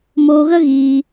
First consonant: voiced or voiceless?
voiced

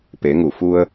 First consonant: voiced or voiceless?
voiceless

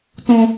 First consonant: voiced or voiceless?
voiceless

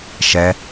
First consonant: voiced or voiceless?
voiceless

